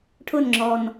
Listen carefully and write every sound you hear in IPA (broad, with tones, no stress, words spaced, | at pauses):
ʈʰʊ˧˩nŋ͡ǁɔ˩n